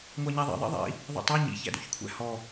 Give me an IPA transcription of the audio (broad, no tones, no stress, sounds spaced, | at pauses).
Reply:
ŋʷ a ɲ æ ðˤ ḭ ðˤ ḭ ðˤ ḭ | ðˤ ḭ tˤ a ɲ ḭ ç æ̰ d o̰ ç kʷʰ æ̰ h ɔ